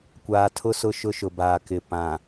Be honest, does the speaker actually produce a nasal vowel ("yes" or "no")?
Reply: yes